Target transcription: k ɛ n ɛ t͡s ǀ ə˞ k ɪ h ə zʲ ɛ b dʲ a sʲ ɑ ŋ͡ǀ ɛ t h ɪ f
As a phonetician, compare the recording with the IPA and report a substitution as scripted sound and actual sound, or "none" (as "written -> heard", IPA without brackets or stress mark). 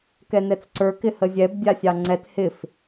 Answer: none